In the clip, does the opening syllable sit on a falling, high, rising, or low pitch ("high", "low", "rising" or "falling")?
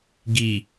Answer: low